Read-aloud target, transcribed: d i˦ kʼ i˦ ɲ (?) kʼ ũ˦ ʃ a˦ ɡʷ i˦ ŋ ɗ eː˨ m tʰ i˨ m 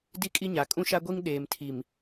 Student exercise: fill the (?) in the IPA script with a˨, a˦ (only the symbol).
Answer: a˨